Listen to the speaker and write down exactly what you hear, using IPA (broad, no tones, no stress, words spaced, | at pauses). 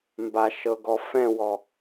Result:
mbaʃɤɡɔ fɛ̃wɔ